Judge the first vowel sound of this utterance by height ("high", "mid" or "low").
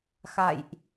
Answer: low